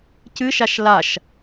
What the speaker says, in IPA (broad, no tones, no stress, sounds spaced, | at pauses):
c ɨ ʃ a ʃ l a ʃ